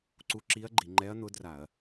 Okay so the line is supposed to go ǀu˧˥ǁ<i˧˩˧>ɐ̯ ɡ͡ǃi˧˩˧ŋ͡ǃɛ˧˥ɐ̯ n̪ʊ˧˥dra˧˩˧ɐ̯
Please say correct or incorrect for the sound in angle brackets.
incorrect